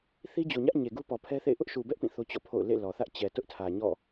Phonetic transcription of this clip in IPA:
θi˦d͡ʑo˨ɲä˦ʔ ɲe˨ɡu˦pɔ˨ pʰɛ˦θḛ˦˨ɪ̯ ʔʊ˦ʔʃu˨bɛ˦ʔ pĩ˦˨θo˦ t͡ɕɔ̰˦˨pʰo̰˦˨ʊ̯ lḛ˦˨lɔ˨θä˦ʔ t͡ɕɛ˨tʊ˦ʔtʰä˨ ɲɔ̰˦˨

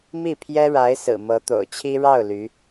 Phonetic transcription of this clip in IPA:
mi˥˩pʰjɛ˥ɻa˧˥ɪ̯ sɹ̩˨˩mɤ˧˥t̪o̰˨˩ʊ̯t͡ɕʰi˥ ɻɑ˥˩ʊ̯ ly˧˥

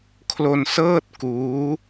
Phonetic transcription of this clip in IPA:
kʰlo˧nsɤː˥˩t̚kuː˦˥

